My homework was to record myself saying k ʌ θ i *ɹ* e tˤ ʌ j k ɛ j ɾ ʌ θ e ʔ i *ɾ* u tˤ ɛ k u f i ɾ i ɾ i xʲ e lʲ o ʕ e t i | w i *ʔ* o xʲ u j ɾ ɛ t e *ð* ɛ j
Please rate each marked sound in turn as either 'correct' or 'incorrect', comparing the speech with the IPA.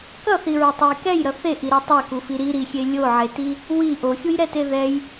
correct, correct, correct, correct

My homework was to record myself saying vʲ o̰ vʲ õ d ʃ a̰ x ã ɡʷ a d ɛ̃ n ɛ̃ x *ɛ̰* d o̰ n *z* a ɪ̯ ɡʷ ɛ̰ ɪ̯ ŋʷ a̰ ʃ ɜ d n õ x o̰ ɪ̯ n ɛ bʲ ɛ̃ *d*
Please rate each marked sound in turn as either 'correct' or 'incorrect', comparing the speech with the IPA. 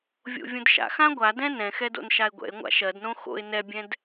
incorrect, incorrect, correct

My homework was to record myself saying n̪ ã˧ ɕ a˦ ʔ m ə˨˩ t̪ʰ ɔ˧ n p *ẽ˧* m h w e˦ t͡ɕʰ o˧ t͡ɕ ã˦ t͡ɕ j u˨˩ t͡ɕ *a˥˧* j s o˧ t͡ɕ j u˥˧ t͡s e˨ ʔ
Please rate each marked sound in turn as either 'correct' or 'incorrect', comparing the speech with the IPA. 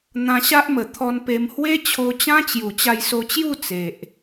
incorrect, incorrect

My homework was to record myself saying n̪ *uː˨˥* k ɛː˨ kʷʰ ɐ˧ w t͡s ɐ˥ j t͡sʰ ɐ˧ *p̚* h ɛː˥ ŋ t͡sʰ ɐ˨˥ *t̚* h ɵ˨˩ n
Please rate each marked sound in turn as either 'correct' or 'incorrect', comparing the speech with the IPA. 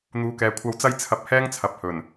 incorrect, correct, incorrect

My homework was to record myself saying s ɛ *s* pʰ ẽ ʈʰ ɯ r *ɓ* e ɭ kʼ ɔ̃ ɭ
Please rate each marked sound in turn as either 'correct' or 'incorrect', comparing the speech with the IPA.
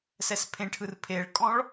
correct, incorrect

